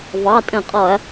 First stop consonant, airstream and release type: ejective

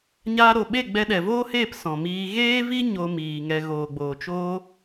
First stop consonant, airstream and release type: implosive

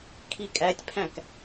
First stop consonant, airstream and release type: aspirated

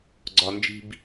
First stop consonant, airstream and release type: click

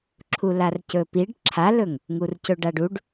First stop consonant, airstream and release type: click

